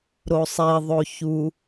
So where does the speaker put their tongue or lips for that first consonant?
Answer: tongue tip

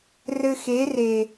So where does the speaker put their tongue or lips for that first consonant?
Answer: tongue tip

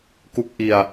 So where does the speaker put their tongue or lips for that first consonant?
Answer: velum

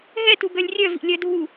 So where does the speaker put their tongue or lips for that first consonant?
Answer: throat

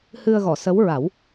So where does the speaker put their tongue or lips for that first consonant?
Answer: throat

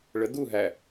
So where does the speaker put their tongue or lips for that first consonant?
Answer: retroflex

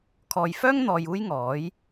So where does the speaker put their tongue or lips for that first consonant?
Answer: velum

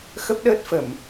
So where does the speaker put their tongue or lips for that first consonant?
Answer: velum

